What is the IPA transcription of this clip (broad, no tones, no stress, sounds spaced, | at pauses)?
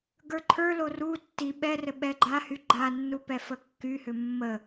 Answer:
ɡ ə˞ ǃʰ ə˞ l o r u tː i ɓ ɛ r ɘ ɓ ɛ ɡ͡ǃ a h y ɡ͡ǃ a nː u p ɛ f ə kː y h ʏ mː ə